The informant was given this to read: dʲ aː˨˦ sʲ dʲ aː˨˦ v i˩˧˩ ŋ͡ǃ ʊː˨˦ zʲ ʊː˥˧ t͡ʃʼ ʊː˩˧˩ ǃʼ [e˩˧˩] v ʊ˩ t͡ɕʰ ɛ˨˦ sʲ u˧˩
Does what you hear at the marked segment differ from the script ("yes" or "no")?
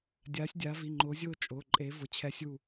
yes